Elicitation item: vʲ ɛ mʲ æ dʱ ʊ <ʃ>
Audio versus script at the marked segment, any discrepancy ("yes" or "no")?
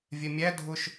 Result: no